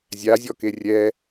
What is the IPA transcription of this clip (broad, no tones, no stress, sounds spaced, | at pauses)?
zʲ a zʲ ɔ k e rʲ ɛ